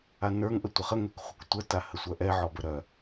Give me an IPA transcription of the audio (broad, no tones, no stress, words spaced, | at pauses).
anə˞ŋ ʔətʷɐχə ŋɛkχʷɐktʷə tahəsʷœʔɛ ʕɔbəɾœ